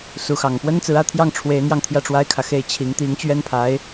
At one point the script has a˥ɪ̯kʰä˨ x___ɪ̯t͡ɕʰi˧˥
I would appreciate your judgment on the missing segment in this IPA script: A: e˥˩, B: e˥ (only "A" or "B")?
A